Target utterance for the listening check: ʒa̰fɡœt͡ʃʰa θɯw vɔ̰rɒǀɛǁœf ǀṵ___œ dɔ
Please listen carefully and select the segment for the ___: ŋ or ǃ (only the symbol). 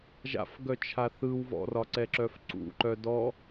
ǃ